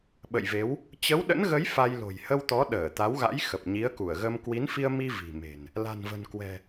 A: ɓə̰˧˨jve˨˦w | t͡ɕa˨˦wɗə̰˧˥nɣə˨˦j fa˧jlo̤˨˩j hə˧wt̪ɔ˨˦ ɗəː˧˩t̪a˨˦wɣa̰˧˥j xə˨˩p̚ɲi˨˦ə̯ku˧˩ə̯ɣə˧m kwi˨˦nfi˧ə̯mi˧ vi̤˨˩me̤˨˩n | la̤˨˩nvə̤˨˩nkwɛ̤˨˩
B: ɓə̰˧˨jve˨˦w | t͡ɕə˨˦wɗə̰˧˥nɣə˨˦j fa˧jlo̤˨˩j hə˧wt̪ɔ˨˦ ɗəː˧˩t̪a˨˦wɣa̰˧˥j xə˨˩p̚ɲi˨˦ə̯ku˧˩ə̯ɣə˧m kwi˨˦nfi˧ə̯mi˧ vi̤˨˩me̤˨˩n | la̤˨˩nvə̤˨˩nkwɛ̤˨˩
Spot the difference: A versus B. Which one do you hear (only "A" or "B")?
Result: B